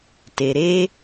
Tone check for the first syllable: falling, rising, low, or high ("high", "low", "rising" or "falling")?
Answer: low